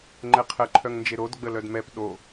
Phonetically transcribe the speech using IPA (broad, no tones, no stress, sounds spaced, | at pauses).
ŋ͡ǃ ɛ qʰ ə ǃʰ œ ŋ n d͡ʒ e ɾ o d ɡ͡b ə l œ d m ɛ p ɗ o